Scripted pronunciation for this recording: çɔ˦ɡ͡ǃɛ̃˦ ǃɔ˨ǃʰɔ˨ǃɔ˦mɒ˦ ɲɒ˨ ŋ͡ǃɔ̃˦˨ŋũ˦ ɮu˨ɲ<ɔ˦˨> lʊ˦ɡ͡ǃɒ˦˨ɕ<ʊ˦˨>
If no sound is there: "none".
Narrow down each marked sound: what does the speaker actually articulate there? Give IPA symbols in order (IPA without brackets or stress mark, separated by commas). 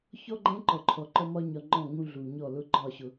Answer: ɔ˦˨, ʊ˨